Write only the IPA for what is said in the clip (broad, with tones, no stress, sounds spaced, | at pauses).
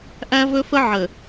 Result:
ʔ æ˦ v ɵ˦ f ə˦ ʕ ə˨